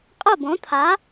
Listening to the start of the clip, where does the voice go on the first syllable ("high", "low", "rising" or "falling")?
falling